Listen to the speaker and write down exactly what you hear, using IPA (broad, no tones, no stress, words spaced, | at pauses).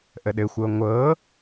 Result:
ʔəɗɘxʷɤ ŋʷɤ